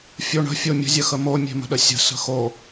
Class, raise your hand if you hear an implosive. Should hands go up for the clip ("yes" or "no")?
yes